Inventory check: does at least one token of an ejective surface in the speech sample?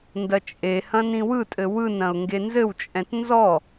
yes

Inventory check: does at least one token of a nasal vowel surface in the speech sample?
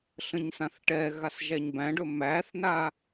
yes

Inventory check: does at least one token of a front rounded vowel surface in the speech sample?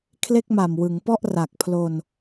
no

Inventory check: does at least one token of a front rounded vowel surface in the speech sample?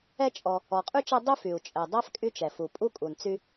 yes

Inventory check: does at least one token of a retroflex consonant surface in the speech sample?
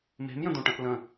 yes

